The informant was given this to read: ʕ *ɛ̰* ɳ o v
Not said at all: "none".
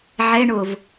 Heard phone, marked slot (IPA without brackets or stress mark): ɛ